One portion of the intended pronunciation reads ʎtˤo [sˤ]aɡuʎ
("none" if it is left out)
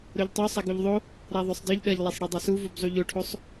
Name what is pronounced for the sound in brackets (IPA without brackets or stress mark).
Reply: sˤ